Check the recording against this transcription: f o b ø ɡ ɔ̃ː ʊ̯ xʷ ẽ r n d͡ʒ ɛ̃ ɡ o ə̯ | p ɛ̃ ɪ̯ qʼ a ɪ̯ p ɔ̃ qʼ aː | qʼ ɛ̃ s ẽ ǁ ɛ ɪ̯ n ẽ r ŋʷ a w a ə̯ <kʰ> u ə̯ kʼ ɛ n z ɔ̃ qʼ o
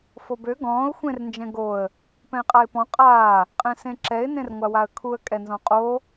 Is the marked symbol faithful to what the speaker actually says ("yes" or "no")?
yes